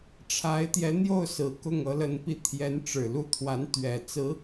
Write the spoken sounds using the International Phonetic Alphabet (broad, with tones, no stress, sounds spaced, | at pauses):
ʈ͡ʂʰ a˧˥ ɪ̯ t̪ j ɛ˧˥ n̪ j o˥˩ ʊ̯ s ɹ̩˨˩ k ʊ˥˩ ŋ ɤ˧˥ l ə˧˥ n p i˥˩ t̪ʰ j ɛ˧˥ n ʈ͡ʂ ɻ̩˨˩ l u˥˩ t̪ʰ w a˧˥ n t̪ ɥ ɛ˨˩ t͡s ɹ̩˧˥